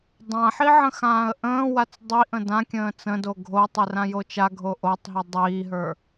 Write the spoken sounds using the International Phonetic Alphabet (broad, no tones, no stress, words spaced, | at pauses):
dˤãħi ʕə̃xãːə̯ʔə̃ːwat͡s dˤiʔə̃ dãkʲə̃ː t͡sə̃do ɡʱotˤe rãjot͡ʃaɡʱo ʔotˤɦi dˤiːɦə˞